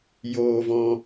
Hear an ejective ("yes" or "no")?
no